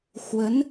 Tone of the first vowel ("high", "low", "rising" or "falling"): rising